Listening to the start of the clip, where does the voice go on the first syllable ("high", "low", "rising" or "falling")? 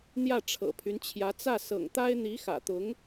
falling